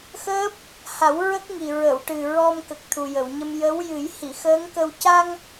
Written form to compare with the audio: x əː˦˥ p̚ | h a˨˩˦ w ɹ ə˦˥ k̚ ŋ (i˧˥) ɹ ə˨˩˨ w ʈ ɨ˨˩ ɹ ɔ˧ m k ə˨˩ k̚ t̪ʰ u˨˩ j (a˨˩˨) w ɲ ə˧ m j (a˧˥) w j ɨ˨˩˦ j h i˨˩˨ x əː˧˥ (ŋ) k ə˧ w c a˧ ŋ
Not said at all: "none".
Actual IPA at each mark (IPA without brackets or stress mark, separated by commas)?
i˨˩, ə˨˩˨, ə˧˥, ŋ